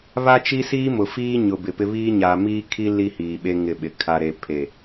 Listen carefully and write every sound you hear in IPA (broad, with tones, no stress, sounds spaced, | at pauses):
β a˦ t͡ʃ i˦ s iː˦ m ʊ˨ f iː˦ ɲ ʊ˨ b ɪ˨ p ɪ˦ β iː˦ ɲ aː˨ m iː˦ kʰ i˦ l i˦ h iː˨ ɓ e˦ ŋ ɪ˦˨ ɓ ɪ˨ kʰ a˨ ɾ e˨ pʰ e˨